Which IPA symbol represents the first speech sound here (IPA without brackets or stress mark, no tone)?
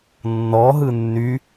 nː